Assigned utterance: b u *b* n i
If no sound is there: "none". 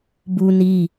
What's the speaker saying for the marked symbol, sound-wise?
none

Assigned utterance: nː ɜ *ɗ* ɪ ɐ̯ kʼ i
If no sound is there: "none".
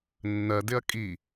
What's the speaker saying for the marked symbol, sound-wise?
d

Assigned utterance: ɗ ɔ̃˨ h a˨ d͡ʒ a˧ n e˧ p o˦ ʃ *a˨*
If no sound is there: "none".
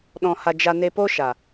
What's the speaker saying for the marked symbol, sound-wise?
a˨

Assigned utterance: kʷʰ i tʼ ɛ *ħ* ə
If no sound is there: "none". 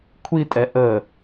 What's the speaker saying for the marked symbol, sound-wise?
ʔ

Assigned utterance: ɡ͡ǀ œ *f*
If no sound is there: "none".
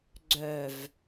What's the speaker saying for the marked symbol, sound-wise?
v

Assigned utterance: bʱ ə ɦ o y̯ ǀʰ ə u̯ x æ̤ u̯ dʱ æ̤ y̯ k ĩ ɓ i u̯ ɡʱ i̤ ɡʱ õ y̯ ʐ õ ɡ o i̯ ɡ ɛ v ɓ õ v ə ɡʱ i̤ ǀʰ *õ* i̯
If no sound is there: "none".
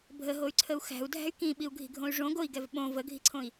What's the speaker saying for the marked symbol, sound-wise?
õ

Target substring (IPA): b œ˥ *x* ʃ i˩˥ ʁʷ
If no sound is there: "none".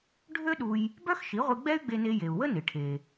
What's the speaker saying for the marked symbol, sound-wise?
x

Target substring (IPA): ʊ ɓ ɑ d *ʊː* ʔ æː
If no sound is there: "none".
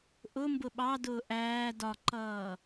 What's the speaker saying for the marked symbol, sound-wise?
ʊː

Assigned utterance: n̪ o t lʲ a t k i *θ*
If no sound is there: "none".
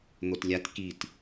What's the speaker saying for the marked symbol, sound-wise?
t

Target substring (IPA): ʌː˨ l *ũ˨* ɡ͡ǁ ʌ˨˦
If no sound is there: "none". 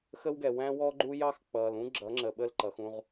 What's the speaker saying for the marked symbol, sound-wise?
ũ˦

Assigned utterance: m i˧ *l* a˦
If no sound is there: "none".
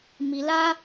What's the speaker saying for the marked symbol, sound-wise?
l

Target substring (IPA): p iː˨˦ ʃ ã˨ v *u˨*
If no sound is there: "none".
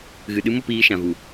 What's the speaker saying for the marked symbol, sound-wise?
u˨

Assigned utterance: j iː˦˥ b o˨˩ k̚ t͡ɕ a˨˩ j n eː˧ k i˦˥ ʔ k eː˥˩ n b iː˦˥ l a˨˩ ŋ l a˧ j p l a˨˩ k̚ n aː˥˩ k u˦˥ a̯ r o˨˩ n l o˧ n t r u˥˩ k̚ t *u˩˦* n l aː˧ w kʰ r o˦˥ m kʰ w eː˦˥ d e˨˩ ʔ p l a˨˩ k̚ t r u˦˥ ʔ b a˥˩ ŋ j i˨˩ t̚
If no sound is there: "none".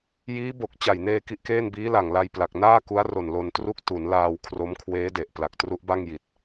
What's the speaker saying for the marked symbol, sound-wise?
u˩˦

